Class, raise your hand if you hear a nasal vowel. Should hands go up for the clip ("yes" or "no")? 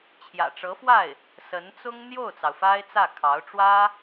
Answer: no